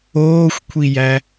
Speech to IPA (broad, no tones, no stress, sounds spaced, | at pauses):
oː xʷ kʷʰ i j æ